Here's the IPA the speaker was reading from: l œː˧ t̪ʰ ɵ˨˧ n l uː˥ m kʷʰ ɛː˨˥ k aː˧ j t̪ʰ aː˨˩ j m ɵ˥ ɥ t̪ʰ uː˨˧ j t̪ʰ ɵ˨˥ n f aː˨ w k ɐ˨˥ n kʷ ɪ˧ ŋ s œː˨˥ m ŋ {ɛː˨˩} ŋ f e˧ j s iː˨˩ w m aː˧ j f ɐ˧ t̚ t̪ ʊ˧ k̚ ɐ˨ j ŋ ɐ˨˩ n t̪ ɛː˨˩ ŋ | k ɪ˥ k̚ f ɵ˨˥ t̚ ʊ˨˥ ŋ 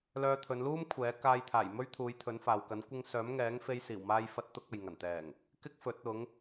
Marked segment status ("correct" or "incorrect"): incorrect